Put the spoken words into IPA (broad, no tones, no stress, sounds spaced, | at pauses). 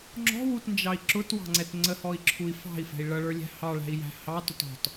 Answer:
ŋ͡ǁ ɔ̤ w u t n d͡ʒ ɑ i̯ ǁ ʊ t w ɑ̤ ŋ͡ǀ ɛ t ŋ͡ǀ ə h ɔ i̯ ǁʰ u i̯ f ɑ̤ i̯ f ɛ̤ i̯ ɭ ʌ ɭ ə˞ lʲ æ̤ h ɑ ɭ æ̤ i̯ j æ̤ h ɑ t ʊ t ɔ̤ t